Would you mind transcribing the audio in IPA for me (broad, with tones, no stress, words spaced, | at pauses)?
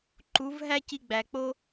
ǃu˨˦vɦæ˦ ci˧ɡ͡bæ˨k͡po˦